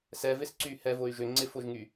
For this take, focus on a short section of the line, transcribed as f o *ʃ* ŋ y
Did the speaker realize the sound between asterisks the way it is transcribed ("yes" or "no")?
no